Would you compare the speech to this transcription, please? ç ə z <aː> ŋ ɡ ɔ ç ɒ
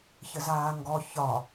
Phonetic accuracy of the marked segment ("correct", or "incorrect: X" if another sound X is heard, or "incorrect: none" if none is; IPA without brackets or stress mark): correct